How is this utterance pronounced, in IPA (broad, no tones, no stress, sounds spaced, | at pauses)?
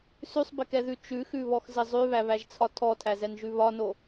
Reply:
s ʉ sˤ b ɪ k ɛ ð ʉ t͡ʃ ʉ x ʉ β ɔ x z ɪ zˤ ʉ β æ β æ ʒ t͡sʰ ɒ tʰ ɔ tʰ æ z ɛ n ʒ ʉ β ɒ n o